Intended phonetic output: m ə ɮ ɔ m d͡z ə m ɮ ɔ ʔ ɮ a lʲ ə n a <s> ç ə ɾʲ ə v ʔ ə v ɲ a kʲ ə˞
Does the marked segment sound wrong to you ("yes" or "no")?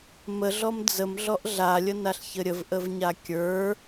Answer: yes